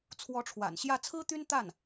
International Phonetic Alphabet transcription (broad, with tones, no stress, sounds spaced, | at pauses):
t͡sʰ w ɔ˧˥ ʈ͡ʂʰ w a̰˨˩ n ɕ j ä˥˩ t͡sʰ ɹ̩˥ t̪ y˥ n t̪ a˥˩ n